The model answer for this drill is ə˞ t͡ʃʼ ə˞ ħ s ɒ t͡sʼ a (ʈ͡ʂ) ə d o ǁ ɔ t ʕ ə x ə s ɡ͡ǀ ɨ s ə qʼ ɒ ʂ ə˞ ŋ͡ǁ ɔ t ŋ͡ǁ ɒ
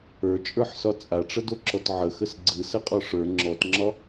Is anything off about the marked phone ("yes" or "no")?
no